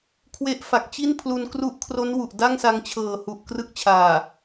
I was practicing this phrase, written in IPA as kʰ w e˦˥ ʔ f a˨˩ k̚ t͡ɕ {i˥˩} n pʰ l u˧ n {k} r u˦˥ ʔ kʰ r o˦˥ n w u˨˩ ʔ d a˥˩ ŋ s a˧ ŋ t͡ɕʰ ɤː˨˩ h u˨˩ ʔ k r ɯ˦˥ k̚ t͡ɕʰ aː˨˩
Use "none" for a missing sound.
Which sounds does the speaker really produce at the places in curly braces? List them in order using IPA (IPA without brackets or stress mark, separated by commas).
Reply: i˥˩, k